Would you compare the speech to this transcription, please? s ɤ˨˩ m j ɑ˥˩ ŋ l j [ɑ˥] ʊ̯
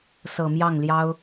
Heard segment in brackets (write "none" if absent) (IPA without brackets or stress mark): ɑ˥